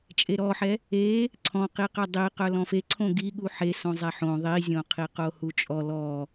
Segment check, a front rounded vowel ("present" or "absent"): present